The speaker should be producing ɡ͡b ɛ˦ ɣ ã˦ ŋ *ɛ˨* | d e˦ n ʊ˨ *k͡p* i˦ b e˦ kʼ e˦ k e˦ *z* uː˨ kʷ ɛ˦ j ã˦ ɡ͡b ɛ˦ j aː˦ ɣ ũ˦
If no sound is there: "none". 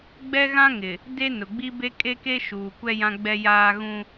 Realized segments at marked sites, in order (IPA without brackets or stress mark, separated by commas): ɪ˨, ɡ͡b, ʃ